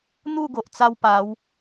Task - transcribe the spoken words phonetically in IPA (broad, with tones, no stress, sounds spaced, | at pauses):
n̪ u˥˧ ɡ o˨ ʔ t͡s a˦ w p a˨˦ w